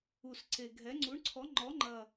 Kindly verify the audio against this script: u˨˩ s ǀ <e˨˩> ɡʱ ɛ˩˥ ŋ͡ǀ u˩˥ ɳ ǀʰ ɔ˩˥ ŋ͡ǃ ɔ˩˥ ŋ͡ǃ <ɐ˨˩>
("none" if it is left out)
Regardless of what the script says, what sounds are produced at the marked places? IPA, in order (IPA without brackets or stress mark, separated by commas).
e˨˩, ɐ˨˩